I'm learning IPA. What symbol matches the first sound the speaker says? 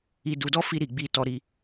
i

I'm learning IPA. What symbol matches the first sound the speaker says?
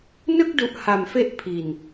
n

